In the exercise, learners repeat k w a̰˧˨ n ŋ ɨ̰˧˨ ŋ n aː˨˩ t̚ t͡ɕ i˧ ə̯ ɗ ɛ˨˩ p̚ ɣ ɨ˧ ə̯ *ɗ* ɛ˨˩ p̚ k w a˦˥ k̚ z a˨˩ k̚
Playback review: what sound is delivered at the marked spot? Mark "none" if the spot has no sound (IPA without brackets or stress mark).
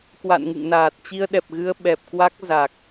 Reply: ɓ